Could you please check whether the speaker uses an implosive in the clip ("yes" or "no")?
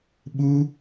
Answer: yes